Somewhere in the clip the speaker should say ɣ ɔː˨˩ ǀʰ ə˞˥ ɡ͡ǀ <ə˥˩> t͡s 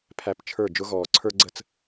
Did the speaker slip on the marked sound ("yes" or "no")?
no